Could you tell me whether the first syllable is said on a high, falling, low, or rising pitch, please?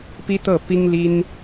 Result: high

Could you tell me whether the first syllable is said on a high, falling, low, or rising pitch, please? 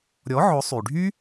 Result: rising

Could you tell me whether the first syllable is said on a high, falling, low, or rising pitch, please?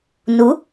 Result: rising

